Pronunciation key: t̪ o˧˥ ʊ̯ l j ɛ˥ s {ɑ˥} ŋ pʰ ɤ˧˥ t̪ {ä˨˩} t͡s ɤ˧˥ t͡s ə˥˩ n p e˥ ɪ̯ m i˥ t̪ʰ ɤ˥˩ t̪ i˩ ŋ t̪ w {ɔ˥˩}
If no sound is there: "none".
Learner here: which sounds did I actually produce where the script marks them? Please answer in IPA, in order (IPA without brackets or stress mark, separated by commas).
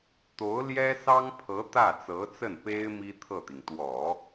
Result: ɑ˥, ä˥˩, ɔ˨˩˦